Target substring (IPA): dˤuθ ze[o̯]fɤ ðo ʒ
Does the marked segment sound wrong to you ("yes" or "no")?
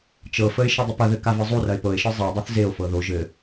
no